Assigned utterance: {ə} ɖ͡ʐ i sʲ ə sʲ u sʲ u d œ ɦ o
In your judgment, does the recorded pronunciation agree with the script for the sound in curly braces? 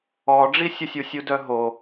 no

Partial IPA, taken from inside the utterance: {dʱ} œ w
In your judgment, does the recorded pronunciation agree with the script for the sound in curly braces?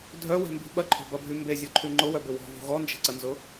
yes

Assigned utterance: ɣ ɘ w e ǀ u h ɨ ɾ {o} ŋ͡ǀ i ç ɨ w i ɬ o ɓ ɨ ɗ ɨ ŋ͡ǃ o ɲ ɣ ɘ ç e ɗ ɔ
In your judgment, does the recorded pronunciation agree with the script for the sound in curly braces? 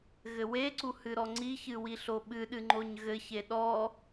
no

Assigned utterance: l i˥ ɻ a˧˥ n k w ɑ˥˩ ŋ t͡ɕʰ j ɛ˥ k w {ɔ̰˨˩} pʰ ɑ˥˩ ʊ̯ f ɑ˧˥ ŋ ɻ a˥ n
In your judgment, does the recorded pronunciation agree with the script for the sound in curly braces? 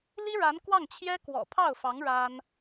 yes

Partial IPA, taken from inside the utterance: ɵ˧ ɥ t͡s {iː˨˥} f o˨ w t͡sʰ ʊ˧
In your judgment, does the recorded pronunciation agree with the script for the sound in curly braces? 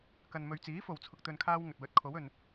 yes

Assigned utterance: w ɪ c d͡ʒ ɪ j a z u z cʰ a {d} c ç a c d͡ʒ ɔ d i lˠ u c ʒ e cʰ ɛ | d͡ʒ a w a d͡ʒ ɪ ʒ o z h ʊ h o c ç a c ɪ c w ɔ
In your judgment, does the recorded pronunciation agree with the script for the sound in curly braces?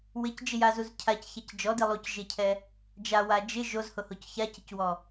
no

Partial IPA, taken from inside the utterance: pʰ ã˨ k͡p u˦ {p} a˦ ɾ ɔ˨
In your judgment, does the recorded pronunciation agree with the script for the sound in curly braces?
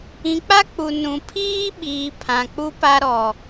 yes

